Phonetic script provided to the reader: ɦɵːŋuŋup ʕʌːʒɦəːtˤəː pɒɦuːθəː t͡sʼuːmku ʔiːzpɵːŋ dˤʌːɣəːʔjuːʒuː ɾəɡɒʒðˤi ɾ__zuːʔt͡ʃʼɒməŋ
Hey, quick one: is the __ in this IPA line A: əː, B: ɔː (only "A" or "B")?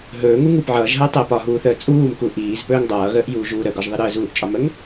A